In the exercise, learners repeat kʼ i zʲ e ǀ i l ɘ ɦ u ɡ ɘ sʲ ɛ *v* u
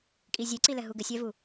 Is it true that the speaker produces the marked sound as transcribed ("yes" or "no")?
yes